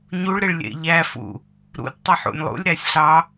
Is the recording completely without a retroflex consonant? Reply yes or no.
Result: no